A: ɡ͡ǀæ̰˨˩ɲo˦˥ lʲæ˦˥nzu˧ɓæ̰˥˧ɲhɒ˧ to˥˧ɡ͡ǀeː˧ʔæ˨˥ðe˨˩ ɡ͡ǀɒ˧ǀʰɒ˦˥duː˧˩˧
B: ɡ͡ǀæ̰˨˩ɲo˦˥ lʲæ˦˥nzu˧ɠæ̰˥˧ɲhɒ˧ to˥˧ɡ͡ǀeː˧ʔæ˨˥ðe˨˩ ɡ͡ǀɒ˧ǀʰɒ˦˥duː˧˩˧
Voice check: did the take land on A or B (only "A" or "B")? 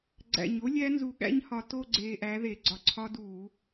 B